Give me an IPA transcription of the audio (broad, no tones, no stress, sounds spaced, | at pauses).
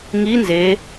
ŋ i n z e